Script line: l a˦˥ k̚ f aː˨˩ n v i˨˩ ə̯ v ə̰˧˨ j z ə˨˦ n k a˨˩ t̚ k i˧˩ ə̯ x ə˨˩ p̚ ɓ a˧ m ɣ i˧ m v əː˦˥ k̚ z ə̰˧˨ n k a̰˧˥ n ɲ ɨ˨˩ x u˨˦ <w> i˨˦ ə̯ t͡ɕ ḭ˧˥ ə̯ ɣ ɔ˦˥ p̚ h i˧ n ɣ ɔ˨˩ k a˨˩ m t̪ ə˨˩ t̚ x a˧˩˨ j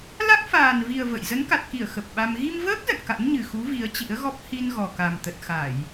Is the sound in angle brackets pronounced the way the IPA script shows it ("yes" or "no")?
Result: no